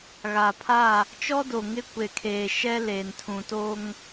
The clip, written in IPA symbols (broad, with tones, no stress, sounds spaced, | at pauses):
ɣ a˨ pʰ a˦˨ | t͡ʃ ɔ˦ d o˨ ŋ ɪ˦ kʷ e˨ kʰ eː˨ ʃ ɛ˦ l eː˨ n tʰ ũ˨ t oː˦ ŋ